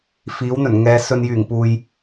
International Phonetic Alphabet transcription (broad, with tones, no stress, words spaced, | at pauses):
fiː˨˥wn̪ɵ˨˩nŋɛː˨˧ sɵ˨njyː˨˩ŋpuː˨j